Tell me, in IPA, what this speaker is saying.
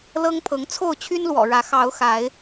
lɤ˦ŋpʰɤ˨˦ŋ t͡sʰo˥˨ʊ̯t͡ɕʰy˦nlwɔ̰˨˩ɻä˨˦ xɑ˨˦ʊ̯xa˨˦ɪ̯

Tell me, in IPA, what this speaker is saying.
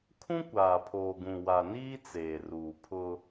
kʰũ˦kʷaː˨pʰoː˨ɡũ˨ wa˨niː˦ t͡seː˨ruː˨ pʰʊ˦

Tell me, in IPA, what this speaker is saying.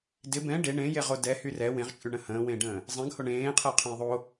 dɪ bɛ̃ ɖe ɳẽjeʁo dɛhy rɛ wẽʁt͡ʃʼyɳə̃ hə̃ːwẽːɖə̃ː | zˤɛ̃ɡho ɳẽːqʰɛqʰɛ̃j ðˤo

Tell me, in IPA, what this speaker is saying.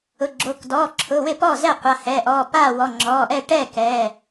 ʊ˩˧˩ɡ͡ǁo˩˧˩k dɔː˩˧˩ǁʰʊ˩˧˩ wɪ˥˩pɔː˥˩zɛ˥˩qʷa˩˧˩ hɛ˩˧˩ʔɔː˩˧˩p aː˥˩wɔ˩˧˩ŋ͡ǁɔː˩˧˩ʔɛ˥˩ ʈɛ˥˩kɛː˩˧˩

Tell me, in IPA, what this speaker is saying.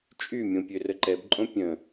t͡ʃʼymʲõ pʲørəǃɛbǃʼõ pʲə̃

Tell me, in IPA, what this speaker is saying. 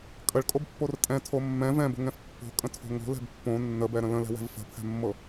kʼəɭkʼobpːor tʼɛ̃tʰo mːɛ̃ vɛ̃bə̤ŋɛ̃f pːo̤kʼə̃tʰo̤ ŋo̤lɛ̤b pːõ nːəbɛɾə̃ lə̃lɛ̤wɛ̤v fə̤pʰɛ̤mːɤ

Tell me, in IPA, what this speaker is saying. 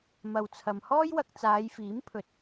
mɐ˨wt͡sʰɐ˨mhɔː˥jwɐ˧k̚ t͡saː˨˧jfiː˨˥mpʰɵ˨˥t̚

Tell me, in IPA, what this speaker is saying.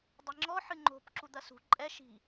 dˤeŋ͡ǁɔ ħɨŋ͡ǃo̤p ǁud̪ɐsṳ ǃʼɛ ʃi̤

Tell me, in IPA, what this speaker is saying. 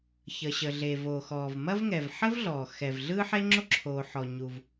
çə˩ɕə˩ɮe˩ voː˩xɔː˩vmɐ˥vŋɛ˩v ħə˥vɮɔː˩ xɛ˩v ɮɯ˥ ħe˥ŋ͡ǁo˥ǁʰoː˩ ħɔ˩ɲu˩v

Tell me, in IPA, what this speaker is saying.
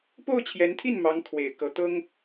po˥˩ʊ̯t͡ɕʰjɛ˧˥nt̪ʰi˥˩n mɑ˧˥ŋkʰwe˨˩ɪ̯ kɤ˧˥ t̪ɤ˥ŋ

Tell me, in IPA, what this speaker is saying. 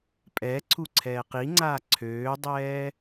pʼɛ ǀʰuǀʰɛːqiŋ͡ǀaː ǀʰøːdˤɛː

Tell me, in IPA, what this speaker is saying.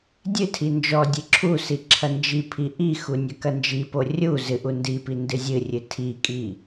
dʲɨtʰi nd͡ʒɔdʲɨ ǁʰusi ǁʰɐnd͡ʒipʰi ʔixu nʲɐkɐnd͡ʒipo rʲu zɨʔu ndipi ndɨzʲɨrʲɨ tʰikʼi

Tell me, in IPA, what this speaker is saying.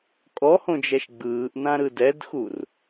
kʼɔhõd͡ʒɛʃ ɡ͡bɯːʔnãɾɯ dɛdxur

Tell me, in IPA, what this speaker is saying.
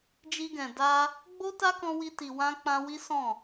d͡ʒi˧ɡɛ̃˨ da˧ | ɡ͡bo˦ta˦kɔ̃˧ wi˧ti˨wã˧ k͡pã˧wi˦sɔ̃˦˨

